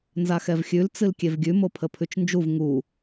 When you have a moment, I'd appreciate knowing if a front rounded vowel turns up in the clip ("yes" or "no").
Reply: no